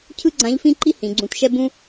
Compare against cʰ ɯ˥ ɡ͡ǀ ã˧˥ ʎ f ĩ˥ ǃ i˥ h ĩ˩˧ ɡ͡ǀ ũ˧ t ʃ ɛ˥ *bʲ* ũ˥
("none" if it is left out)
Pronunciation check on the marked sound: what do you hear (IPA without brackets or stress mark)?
b